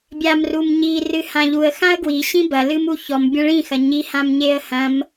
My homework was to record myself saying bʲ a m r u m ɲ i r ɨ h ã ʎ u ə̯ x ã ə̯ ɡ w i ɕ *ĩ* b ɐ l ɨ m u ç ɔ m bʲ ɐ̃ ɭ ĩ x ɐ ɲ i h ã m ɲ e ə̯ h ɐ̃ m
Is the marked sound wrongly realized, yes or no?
no